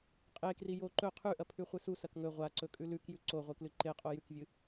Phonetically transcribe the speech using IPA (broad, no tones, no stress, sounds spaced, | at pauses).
qʼ e k r i j o ǃ ɵ qʰ ʉ ʔ ɐ pʰ ʉ χʷ ɨ s u s ɐ k ŋ ɵ ʁʷ a ǀ ɵ kʼ ʉ l ʉ k j ʉ ǀ o ʁʷ ɨ k l ɨ ǃ e qʼ o j ʉ k vʲ ɨ